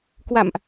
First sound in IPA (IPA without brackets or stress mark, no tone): k